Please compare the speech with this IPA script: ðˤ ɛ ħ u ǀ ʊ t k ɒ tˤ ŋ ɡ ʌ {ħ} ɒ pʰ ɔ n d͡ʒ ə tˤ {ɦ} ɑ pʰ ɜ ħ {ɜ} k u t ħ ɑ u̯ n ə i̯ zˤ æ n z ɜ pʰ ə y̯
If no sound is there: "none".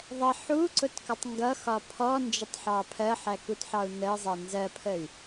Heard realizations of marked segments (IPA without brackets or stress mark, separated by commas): x, ħ, æ